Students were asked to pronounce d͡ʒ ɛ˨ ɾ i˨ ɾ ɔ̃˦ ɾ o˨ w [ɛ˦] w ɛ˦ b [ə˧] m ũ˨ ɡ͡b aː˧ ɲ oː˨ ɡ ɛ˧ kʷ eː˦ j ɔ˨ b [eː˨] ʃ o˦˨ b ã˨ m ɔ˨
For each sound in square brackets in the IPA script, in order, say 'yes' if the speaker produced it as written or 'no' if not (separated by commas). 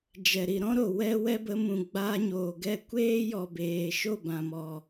yes, yes, yes